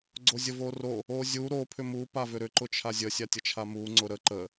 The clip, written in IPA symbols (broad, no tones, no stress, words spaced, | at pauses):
ɡ͡ǀozʲəvoro | ozʲu ɾo pʰʏmu pavʏɾʏ ǃʊt͡ʃʰazʲə sʲatʲət͡ʃʰamu ŋ͡ǀʊɾə ǃə